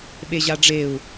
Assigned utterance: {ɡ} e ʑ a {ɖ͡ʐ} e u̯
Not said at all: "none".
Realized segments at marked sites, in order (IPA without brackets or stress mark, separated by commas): ɓ, ɖ͡ʐ